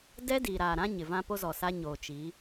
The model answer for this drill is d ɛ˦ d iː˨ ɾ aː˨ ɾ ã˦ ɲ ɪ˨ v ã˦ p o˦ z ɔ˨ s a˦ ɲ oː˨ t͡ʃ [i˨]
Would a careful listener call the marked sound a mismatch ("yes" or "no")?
yes